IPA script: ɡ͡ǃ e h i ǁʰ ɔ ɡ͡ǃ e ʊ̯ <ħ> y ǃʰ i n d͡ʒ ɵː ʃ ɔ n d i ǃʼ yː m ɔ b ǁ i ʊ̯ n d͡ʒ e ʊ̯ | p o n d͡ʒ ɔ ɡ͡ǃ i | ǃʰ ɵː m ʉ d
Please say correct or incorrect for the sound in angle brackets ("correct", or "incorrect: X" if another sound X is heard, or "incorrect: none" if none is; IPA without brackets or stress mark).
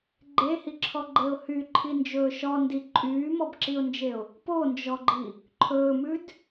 incorrect: h